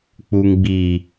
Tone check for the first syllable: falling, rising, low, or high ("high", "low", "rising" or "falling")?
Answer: low